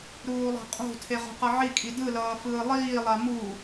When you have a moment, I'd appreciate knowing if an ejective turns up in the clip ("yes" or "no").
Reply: yes